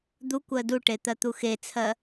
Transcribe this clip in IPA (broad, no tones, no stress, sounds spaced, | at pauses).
d̪ u kʷ ɜ d u ʈ e t̪ ɜ t̪ u x e t͡sʰ ɜ